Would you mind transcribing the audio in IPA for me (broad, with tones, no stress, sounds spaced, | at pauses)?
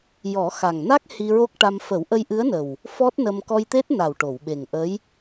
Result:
j ɔ˨˩˦ x a˨˩ ŋ n a˦˥ k̚ h i˧ ɹ o˦˥ k̚ ʈ a˧ m f ə˨˩˦ w ʔ ə˧ j ʔ ɨ˧˥ ə̯ n ə˨˩ w | f ɔ˦˥ t̚ n ə˧ m k ɔ˧ j t̪ e˦˥ t̚ n a˨˩ w ʈ o˨˩˨ w ɓ e˨˩ ŋ ʔ ə˧˥ j